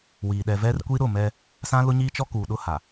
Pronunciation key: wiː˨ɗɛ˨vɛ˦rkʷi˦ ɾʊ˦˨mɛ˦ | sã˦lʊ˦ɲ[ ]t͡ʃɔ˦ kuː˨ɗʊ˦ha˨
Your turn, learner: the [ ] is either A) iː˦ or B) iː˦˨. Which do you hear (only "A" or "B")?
A